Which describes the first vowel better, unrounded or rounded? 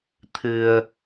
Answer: unrounded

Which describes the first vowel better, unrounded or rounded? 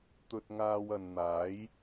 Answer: rounded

